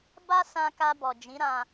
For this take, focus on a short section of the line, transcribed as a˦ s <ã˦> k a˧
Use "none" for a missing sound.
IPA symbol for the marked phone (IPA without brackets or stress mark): ã˧